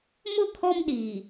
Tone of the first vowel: falling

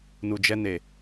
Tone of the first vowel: low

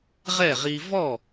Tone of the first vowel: falling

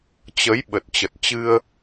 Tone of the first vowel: rising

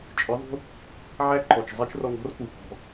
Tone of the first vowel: rising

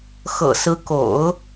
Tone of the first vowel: low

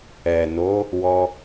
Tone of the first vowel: low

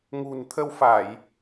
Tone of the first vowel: low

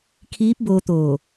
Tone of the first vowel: rising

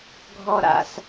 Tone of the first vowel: low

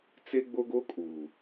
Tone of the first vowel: high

